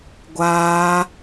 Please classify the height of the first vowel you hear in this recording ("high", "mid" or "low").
low